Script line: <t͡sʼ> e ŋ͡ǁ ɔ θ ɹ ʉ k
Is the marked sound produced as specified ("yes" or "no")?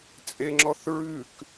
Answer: yes